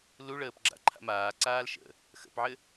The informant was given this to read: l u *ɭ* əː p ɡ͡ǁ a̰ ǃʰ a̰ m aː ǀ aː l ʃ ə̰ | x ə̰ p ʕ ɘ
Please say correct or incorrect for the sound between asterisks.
correct